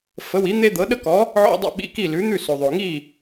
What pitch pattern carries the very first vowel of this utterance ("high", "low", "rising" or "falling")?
rising